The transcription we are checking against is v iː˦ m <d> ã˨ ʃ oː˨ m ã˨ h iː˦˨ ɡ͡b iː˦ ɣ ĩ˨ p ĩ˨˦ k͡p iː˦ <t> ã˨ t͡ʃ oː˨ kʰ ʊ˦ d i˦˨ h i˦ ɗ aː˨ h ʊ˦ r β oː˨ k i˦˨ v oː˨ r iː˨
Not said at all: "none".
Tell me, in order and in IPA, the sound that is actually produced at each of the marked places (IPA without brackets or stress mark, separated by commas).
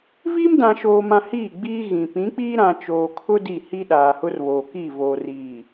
d, ɾ